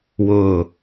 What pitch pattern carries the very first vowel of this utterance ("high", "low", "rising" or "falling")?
falling